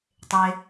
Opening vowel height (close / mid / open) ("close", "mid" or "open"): mid